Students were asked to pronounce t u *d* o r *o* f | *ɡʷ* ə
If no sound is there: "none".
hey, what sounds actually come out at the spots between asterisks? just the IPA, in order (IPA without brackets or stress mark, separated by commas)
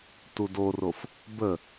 d, o, b